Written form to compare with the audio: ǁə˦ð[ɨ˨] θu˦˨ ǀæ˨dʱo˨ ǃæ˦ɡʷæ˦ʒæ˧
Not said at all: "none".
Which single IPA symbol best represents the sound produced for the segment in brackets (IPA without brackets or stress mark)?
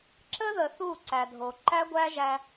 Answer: ə˨